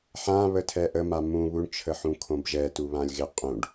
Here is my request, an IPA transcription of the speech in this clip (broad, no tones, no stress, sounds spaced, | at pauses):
ħ ã β ə tʰ ɛ ʔ ə m a m ũ β u ɳ t͡ʃʰ ə ħ ũ kʰ õ b ʒ ɛ t u β ã lʲ ɣ ɪ qʼ ũ ɖ